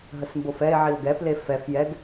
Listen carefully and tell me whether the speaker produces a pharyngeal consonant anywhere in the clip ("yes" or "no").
yes